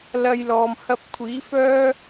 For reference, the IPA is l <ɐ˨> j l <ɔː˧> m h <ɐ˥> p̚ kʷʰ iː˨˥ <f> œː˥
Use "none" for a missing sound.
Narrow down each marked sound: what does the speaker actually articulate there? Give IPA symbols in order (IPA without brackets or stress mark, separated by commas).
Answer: ɐ˧, ɔː˨, ɐ˧, f